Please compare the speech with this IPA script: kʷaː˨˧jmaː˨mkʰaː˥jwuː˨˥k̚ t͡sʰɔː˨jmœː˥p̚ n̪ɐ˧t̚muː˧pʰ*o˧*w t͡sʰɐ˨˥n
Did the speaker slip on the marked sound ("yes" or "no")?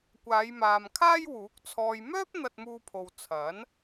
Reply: yes